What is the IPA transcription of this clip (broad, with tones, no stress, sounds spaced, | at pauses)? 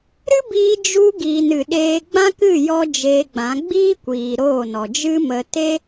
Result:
ɾ ɨ˦ b iː˧ d͡ʒ u˧ ɡ iː˨ n ɨ˨ ɗ eː˧ ɡ͡b ã˦ k ɨ˦˨ j ɔ˦ d͡ʒ eː˧ ɡ͡b ã˨˦ ɡ͡b iː˦ kʷ iː˨ ɾ oː˦˨ n ɔ˨ d͡ʒ ɨ˦ m ə˧ t e˦